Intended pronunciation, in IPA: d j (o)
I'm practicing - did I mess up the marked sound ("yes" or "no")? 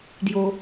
no